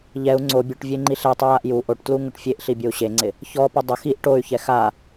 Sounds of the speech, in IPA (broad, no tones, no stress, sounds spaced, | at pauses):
ʎ ɛ u̯ ŋ͡ǀ o bʲ u ʈ vʲ e ŋ͡ǃ i ɬ ɛ tˤ u j a ʔ j u ʔ o ʈ t l u ŋ ʊ ʈ fʲ e ʔ ɬ i bʲ o u̯ ɕ e ŋ͡ǀ ɪ | ç ɔ p ʊ dˤ ʊ x i ʔ ʈ o y̯ ç ɛ x a